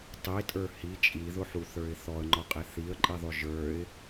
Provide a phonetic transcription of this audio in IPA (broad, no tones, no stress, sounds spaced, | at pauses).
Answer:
tˤ i tʼ ə˞ h i t͡ʃʼ i ð ʊ ħ u θ ə˞ ɪ̯ θ ɔ ə̯ ŋ͡ǃ ɔ qʼ e θ i ə̯ ǃʼ i ðˤ ʊ ʒ ə˞ ɪ̯